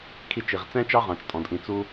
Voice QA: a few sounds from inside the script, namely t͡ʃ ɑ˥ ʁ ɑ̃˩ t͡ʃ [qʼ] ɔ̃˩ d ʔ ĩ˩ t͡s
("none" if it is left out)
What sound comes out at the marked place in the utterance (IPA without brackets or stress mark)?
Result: tʼ